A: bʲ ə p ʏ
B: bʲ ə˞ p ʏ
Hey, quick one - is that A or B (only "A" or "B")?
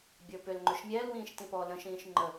B